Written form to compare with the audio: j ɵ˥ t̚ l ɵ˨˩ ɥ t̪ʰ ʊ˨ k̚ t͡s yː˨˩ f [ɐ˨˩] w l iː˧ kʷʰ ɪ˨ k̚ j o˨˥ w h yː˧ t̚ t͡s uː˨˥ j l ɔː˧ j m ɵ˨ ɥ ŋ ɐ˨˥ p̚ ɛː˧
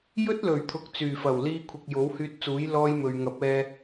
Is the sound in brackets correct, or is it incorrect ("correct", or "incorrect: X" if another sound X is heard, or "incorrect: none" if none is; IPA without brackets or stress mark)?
correct